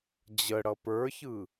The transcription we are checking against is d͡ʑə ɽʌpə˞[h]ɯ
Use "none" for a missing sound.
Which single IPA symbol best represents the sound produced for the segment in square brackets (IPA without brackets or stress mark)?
ç